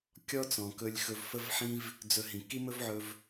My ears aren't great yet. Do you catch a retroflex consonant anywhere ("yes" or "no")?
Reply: no